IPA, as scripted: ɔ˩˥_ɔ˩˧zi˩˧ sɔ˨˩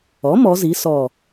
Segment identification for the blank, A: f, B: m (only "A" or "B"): B